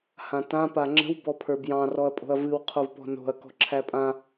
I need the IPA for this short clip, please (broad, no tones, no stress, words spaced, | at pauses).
hãtã paŋ͡ǁə̤w bɔpʰə˞bjɑ̃ rɔɐ̯pʼo̤ɐ̯vɨw qʰovpɔ̤no̤ɐ̯ kɔ̤ǁʰæpʼã